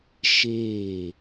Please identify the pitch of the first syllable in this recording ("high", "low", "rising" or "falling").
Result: falling